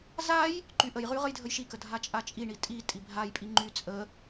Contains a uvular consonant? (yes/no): yes